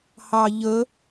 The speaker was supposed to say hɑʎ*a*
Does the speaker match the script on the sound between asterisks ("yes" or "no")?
no